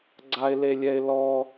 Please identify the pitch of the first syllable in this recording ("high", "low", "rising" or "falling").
high